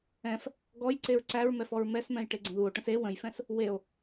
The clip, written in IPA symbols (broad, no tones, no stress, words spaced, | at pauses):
ɛ̃f | ɡɔjǀeɹ ǀæɹmɛf ɔɹmɛsmɛ̃j ʈeɡ͡ǀə̃ðuo̯ʈə̃s e wə̃jfɛ̃s | weo̯